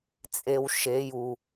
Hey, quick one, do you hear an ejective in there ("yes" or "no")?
yes